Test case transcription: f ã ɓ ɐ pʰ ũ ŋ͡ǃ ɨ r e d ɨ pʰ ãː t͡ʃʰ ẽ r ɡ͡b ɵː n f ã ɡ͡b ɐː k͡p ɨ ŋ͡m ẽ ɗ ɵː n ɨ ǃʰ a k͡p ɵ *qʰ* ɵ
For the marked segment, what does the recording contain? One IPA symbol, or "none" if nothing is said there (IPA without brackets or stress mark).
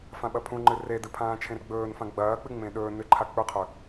qʰ